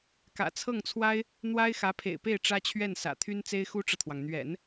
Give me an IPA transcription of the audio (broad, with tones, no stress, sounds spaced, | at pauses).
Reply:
k ä̰˨˩ t͡sʰ ɤ˥˩ ŋ t͡sʰ w a˥ ɪ̯ | n̪ w a˥ ɪ̯ x ä˧˥ pʰ ḛ˨˩ ɪ̯ p e˥˩ ɪ̯ ʈ͡ʂ ä˥ t͡ɕʰ ɥ ɛ˥˩ n s ä̰˨˩ t̪ʰ y˥ n t͡s e˥ ɪ̯ x u˥ ʈ͡ʂ ɤ˨ t̪ʰ w ɑ˩ ŋ n̪ ɥ ɛ̰˨˩˦ n